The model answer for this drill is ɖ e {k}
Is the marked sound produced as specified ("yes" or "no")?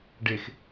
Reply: no